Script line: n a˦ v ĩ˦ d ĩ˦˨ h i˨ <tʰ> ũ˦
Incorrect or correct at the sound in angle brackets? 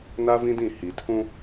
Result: correct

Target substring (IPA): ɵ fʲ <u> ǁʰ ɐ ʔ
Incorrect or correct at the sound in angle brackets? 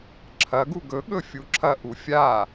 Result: correct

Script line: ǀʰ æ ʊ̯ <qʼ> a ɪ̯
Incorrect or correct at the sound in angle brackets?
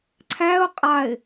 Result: correct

